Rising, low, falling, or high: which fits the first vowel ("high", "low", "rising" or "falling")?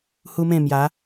high